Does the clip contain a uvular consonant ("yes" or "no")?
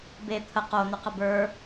yes